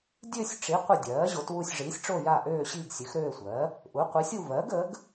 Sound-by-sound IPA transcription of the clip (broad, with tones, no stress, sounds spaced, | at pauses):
dʲ ø˦˨ sʲ ʈ͡ʂ i˩˥ qʷ ə˦˨ dʲ ɜː˩˥ ʑ o˩˥ t w u˦˨ sʲ ʐ iː˩˥ sʲ ʈ͡ʂ o˦˨ j a˦˨ ʔ øː˦˨ ɕ iː˦˨ ɡ sʲ ø˩˥ x ɾ øː˦˨ sʷ ɜ˩˥ | ʔ u˩˥ qʷ i˩˥ sʲ u˦˨ v ɜ˩˥ ɡ ə˩˥ ɡ